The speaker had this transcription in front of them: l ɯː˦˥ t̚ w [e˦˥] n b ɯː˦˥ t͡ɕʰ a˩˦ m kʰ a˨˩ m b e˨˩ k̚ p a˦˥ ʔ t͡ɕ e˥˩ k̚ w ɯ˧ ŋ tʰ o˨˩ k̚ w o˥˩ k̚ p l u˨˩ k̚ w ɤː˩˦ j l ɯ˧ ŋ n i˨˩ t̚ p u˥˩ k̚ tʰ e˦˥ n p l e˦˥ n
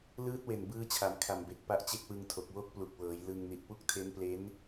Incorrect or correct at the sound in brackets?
incorrect: e˨˩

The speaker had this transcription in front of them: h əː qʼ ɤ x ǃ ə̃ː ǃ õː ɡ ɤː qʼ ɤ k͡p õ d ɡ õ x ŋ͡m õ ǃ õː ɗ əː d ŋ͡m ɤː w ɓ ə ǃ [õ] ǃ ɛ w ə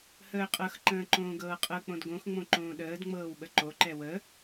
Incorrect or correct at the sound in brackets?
incorrect: o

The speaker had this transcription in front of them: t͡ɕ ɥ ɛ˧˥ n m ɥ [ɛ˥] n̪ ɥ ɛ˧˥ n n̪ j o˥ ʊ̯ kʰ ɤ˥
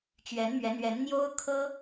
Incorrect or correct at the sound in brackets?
incorrect: ɛ˧˥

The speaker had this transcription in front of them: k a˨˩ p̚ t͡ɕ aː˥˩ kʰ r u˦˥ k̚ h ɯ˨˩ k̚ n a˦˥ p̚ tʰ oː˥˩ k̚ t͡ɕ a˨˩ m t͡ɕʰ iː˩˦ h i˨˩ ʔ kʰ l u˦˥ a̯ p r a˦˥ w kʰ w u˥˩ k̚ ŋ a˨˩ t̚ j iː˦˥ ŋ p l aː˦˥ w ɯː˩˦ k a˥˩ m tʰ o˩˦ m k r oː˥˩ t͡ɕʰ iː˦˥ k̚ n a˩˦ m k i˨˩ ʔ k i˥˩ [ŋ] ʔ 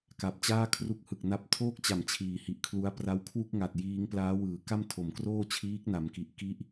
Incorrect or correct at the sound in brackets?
incorrect: none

